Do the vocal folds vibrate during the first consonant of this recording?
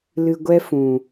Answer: yes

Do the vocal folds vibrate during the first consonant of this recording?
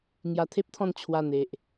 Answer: yes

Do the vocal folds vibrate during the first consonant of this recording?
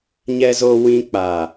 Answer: yes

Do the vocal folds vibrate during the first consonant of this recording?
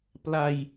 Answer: no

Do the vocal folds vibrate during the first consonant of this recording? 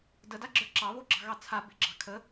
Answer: yes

